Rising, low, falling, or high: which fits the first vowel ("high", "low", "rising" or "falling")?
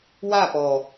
falling